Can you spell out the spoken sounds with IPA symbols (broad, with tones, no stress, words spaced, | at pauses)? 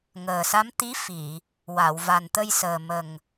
ŋəː˨˩sa˧˥m t̪i˧˥fi˨˩˨ | wa˨˩˨w va˨˩nt̪ə˧jsəː˨˩ mə˨˩ŋ